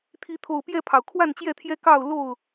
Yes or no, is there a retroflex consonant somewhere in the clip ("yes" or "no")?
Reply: no